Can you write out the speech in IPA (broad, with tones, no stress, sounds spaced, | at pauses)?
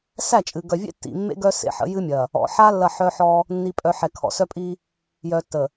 s æ˦˨ t͡ʃʼ ɨ˨ ɡ œ˨ vʲ ḛ˦ tː ḭ˨ mː ḛ˦ ɡ œ˦ s ḛ˨ ħ ə̰˨˦ j ɨ˦ mʲ ɐ˨ | ɔ̰˨ ħ a˦ lː ɐ˦˨ ħ œ˦ ħ ɔ˦ | nː i˨ pʼ œ˨ ħ ɛ˨ kʰ ɔ̰˨ s œ˦ pʼ i˦ | j œ˨ tː ə˨